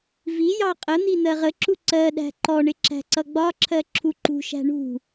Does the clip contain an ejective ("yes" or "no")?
yes